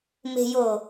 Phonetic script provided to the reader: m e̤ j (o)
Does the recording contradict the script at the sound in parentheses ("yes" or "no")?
no